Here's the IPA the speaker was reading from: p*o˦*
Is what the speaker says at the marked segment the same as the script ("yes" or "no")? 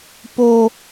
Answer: yes